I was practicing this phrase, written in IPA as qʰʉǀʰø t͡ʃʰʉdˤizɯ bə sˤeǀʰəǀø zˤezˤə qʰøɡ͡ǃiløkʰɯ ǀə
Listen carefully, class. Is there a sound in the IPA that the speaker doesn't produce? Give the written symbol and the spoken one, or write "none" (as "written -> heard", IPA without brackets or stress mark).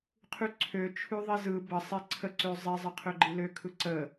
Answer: dˤ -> ðˤ